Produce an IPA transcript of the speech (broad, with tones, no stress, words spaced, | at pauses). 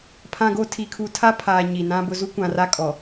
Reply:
pʰã˨ɡo˨ tʰi˨kʰu˨ tʰa˦pʰaː˨ ɲi˨nã˦bʊ˦ zu˦kʷã˨ra˦ kʼɔ˨